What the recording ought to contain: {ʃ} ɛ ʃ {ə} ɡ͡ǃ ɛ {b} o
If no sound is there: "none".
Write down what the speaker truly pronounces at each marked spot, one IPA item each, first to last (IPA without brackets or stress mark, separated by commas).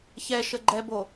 ç, ə, b